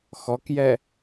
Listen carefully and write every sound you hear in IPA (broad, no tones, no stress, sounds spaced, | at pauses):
x ɔ k j ɛ